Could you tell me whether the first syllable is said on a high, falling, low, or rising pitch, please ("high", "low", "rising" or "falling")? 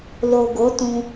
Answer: low